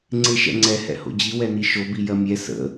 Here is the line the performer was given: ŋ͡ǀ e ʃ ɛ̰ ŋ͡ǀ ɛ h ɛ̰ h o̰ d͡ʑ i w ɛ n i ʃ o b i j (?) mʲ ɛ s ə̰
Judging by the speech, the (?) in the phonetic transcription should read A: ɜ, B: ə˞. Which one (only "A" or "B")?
A